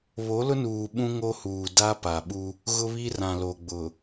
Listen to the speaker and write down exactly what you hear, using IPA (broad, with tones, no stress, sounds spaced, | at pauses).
β o˨˦ l ʊ˦ n uː˨ ɓ ũ˦ ŋ o˦ h uː˨ d a˦ p a˨ ɓ u˦ | ɣ ʊ˦ β i˦ r ã˨ l o˨ ɡ͡b ʊ˨